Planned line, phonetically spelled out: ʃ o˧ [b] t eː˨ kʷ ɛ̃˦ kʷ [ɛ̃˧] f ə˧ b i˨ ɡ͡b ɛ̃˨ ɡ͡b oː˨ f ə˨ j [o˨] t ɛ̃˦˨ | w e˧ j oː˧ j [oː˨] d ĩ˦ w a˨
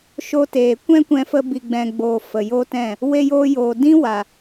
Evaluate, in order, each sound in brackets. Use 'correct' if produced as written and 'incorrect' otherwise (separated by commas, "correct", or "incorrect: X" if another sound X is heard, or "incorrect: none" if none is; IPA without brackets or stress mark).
incorrect: none, correct, incorrect: o˦, correct